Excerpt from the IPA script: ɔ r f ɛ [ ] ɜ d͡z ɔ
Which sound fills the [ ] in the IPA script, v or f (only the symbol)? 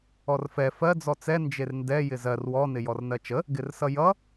f